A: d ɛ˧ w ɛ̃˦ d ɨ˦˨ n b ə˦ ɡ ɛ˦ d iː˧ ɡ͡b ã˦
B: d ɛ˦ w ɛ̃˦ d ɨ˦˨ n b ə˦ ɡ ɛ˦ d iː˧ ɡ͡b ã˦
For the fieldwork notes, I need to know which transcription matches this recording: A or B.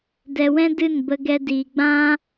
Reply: A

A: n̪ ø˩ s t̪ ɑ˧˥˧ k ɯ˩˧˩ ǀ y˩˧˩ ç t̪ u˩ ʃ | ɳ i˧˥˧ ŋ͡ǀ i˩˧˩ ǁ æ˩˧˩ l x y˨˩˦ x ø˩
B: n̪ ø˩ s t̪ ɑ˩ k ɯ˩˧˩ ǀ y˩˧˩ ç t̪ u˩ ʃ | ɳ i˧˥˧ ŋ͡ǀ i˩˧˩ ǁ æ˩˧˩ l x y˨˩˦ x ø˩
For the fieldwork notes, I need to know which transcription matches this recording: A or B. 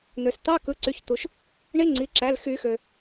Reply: A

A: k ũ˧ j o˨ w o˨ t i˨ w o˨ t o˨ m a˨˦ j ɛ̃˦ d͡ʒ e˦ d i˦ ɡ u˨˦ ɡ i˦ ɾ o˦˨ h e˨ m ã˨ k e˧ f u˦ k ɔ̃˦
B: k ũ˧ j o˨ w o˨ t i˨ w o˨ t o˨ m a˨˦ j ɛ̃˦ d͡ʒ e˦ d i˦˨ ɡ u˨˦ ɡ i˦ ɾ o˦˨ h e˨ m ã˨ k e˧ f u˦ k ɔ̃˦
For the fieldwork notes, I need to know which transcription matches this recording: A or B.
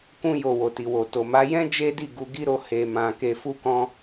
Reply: B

